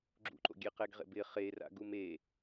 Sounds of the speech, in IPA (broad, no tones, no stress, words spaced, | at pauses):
ɡ͡ǁṵǃo̰ ɡʲeqɛɡʁḛbɪ χera̰ɡum e